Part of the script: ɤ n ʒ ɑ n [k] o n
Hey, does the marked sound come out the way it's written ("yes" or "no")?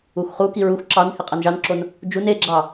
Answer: no